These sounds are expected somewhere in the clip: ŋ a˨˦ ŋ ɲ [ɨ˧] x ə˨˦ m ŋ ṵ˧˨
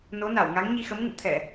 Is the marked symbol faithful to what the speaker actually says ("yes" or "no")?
no